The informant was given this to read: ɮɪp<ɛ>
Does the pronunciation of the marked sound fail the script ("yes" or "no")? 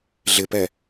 no